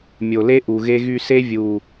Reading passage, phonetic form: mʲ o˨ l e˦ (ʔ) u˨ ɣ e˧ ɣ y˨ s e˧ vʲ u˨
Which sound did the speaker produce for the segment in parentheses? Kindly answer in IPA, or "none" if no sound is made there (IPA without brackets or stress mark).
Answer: ʔ